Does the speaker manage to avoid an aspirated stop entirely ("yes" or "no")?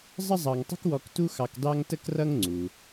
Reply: yes